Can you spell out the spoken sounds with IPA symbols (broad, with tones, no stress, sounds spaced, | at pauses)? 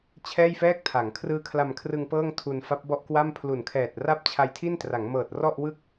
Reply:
t͡ɕʰ ɛː˥˩ j f ɛː˥˩ k̚ tʰ a˩˦ ŋ kʰ r ɯː˦˥ kʰ l a˧ m kʰ r ɯ˧ ŋ p ɤː˥˩ ŋ tʰ u˧ n f a˦˥ p̚ b ɔ˥˩ ʔ k w a˥˩ m pʰ l u˨˩ n kʰ ɛː˨˩ t̚ r a˥˩ p̚ t͡ɕʰ a˧ j tʰ i˥˩ n t r a˩˦ ŋ m ɤː˨˩ t̚ r ɔ˥˩ ʔ w ɯ˥˩ k̚